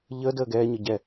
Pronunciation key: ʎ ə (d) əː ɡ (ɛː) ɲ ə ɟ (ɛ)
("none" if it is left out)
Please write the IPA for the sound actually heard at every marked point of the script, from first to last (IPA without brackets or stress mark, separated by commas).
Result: d, ɛː, ɛ